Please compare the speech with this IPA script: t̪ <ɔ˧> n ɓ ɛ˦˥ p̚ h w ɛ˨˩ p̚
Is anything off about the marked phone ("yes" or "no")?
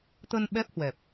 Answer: yes